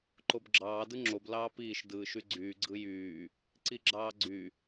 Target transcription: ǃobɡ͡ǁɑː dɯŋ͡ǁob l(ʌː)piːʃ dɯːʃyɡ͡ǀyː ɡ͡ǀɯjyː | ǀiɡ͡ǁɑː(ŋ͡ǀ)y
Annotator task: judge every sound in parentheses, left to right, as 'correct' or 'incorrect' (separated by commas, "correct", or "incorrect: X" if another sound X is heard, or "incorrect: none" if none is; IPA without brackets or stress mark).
incorrect: ɑː, incorrect: ɡ͡ǀ